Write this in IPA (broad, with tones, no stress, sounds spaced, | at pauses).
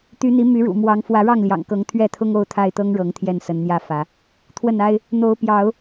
t̪ y˨˦ n̪ i˨˦ m y˨˦ ɻ ṵ˨˩ m w ɑ˨˦ ŋ f w ä˨˦ ɻ ɑ˥˨ ŋ l j ɑ̰˨˩ ŋ k ɤ˨˦ ŋ t̪ʰ ɥ ɛ˥˨ t̪ʰ ʊ˦ ŋ o˥˨ ʊ̯ t̪ʰ a˥˨ ɪ̯ t̪ ɤ˦ ŋ ɻ ɤ˨˦ ŋ t̪ʰ j ɛ˥˨ n s ə˨˦ n n̪ j ä˥˨ f ä˨˦ | t̪ʰ w ə˥˨ n a˦ ɪ̯ | n̪ o˨˦ ʊ̯ p j ɑ˨˦ ʊ̯